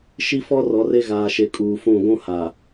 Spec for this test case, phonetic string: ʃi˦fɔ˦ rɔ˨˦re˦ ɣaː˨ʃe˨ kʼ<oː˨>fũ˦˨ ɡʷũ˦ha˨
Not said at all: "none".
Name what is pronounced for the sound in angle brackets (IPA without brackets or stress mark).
uː˨